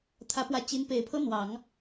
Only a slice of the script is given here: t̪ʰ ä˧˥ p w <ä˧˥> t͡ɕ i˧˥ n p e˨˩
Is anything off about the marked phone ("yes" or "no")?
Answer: no